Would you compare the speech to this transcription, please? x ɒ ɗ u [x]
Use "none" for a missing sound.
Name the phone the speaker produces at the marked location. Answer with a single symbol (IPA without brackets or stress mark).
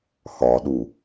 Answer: none